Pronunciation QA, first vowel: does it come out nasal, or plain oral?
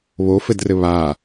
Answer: oral